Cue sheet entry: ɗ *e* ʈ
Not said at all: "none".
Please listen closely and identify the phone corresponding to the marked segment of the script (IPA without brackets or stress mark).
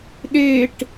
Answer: e